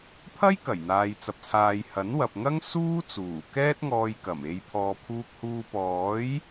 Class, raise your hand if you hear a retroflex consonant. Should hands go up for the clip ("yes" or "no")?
no